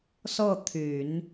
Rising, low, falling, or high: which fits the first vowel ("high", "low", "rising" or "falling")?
falling